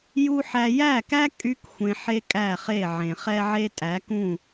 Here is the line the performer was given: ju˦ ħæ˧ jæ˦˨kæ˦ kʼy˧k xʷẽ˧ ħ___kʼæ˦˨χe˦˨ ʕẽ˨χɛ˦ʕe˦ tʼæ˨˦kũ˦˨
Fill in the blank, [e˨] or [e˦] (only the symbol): e˦